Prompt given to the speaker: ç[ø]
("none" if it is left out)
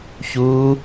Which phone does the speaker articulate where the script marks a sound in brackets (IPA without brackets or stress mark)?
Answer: u